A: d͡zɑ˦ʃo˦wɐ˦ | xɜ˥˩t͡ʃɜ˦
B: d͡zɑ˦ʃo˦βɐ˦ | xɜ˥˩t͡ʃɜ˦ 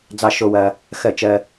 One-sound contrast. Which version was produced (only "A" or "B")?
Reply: A